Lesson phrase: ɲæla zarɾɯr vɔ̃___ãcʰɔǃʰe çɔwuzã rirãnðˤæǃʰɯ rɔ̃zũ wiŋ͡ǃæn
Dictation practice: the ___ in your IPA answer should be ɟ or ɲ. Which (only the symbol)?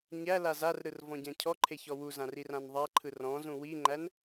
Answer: ɟ